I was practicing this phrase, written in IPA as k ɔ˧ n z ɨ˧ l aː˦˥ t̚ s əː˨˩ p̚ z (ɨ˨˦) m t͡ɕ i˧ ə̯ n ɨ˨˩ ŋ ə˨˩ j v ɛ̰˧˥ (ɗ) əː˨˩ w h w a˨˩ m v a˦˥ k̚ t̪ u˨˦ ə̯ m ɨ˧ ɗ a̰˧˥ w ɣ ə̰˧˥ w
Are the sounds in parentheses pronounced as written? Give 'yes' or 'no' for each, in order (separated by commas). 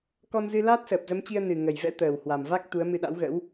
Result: no, no